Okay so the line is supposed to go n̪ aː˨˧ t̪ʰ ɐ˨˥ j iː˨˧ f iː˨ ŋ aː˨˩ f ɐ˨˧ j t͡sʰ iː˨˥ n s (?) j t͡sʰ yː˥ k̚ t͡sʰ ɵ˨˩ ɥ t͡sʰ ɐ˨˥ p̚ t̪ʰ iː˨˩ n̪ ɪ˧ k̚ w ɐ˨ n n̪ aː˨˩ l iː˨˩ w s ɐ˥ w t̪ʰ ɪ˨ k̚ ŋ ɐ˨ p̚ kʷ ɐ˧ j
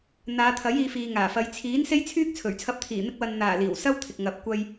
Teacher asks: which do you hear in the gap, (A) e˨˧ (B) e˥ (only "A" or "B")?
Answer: B